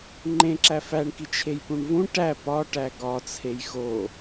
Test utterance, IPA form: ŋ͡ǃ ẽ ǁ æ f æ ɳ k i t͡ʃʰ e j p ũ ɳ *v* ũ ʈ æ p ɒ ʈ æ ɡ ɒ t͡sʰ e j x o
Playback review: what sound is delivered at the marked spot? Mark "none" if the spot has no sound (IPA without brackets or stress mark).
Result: v